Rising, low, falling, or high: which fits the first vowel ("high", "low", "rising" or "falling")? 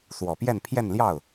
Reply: low